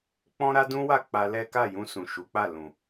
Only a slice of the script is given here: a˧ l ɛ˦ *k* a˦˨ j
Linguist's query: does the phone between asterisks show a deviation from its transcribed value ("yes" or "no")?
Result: no